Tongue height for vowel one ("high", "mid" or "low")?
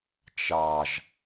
low